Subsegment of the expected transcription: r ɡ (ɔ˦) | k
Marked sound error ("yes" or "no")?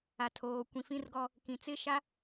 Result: no